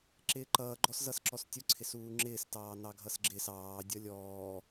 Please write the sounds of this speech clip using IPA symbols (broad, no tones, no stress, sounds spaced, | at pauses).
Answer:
ǁ ɪː ǃ ʌː ɡ͡ǃ ɔ s z ʌ s ǁ ɔ s tʲ ʊ ǀʰ ɪ s uː ŋ͡ǁ ɪː s t ɑː n ɑ ɡʱ ʌ s ɡ͡ǁ ɪ s ɑː dʲ ʌ lʲ ɔː